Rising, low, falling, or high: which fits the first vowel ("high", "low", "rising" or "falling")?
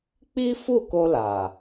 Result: high